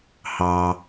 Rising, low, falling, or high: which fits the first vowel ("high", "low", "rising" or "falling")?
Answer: low